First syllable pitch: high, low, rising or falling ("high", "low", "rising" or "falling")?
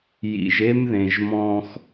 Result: low